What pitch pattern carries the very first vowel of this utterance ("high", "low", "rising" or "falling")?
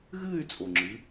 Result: falling